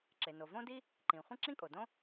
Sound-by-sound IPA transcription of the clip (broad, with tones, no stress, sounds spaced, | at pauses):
ǁ e˩ n o˩ v õ˥ d i˥ | ǃ ĩ˩ χʷ ĩ˥ ǁ ĩ˥ kʼ o˩ d õ˥